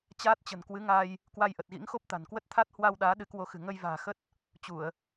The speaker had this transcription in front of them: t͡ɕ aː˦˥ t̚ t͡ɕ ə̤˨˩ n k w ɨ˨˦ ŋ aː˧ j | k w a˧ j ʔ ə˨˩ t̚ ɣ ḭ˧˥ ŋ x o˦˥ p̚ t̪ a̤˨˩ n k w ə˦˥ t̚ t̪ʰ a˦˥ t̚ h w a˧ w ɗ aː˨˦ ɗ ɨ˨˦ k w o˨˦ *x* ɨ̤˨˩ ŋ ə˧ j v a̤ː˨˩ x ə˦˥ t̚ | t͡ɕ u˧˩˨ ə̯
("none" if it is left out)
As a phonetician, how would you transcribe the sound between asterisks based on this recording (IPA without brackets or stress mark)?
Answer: x